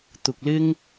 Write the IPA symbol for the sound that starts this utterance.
t̪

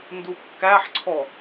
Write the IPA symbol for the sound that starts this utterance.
n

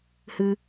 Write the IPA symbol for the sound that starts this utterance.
h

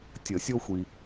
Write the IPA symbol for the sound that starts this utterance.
tʲ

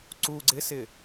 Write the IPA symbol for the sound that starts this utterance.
ǀ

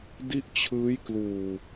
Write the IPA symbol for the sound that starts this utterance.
d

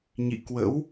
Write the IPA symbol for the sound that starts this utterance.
ɲ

